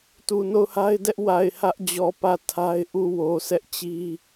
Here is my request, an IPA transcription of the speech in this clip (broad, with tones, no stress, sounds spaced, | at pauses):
t u˨ n o˦˨ ʊ̯ h a˦ ɪ̯ d ɛ˦ ʔ w a˨ ɪ̯ h ä˦ ʔ d͡ʑ ɔ˨ p ä˦˨ tʰ a˦ ɪ̯ ʔ u˦˨ w o˨ sʰ ɛ˦ ʔ t͡ɕ i˦